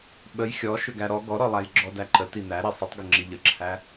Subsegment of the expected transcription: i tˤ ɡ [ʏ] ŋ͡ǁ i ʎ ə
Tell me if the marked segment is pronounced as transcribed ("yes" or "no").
yes